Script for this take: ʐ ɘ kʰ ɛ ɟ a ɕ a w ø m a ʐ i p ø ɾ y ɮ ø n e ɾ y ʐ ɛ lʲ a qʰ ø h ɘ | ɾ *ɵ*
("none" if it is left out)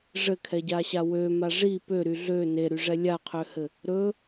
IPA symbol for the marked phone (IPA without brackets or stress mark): ɵ